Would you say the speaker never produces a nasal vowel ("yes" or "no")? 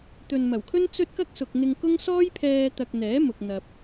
yes